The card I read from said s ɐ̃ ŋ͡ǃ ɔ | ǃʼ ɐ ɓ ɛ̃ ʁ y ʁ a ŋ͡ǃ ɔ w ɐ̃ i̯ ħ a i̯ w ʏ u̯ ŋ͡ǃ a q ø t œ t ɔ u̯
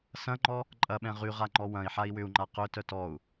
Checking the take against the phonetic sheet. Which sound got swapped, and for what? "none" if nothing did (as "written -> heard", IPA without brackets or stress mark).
none